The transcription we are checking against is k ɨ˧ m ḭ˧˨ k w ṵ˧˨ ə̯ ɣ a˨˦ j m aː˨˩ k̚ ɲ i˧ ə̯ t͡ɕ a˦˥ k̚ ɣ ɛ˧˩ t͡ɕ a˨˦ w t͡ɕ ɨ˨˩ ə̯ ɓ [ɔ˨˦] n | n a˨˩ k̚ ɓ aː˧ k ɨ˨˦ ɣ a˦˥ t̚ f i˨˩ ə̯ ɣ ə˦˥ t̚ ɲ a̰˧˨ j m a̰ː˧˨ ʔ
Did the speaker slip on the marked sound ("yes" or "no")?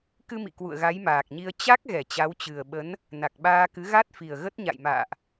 yes